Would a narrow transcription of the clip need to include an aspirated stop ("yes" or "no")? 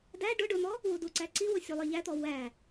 no